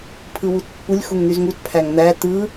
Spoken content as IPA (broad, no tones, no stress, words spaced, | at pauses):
pʰɯwutpːulʲ xuŋn̪yzŋut pʰæŋn̪æ t̪ɯ